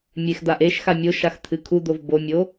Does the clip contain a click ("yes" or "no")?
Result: no